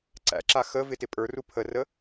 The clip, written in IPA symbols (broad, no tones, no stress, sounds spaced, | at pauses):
ǀ æ̰ ǁ a x ə v ɪ t ɪ pʼ ə˞ r u pʰ ə r ə